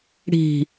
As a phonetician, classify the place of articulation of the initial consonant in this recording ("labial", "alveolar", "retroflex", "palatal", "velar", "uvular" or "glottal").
retroflex